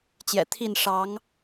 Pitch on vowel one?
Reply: low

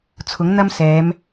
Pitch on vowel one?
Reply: rising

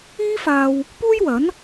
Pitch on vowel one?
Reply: high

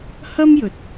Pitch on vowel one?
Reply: high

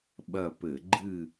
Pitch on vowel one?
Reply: falling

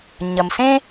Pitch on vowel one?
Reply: low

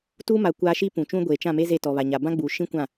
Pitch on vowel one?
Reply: high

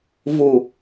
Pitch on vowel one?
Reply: low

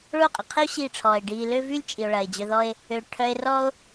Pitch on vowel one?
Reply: falling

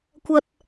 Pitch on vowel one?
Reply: high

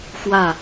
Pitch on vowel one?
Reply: falling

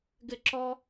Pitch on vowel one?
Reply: falling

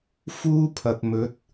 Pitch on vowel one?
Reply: high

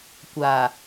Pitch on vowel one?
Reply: low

